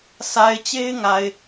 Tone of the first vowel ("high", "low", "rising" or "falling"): low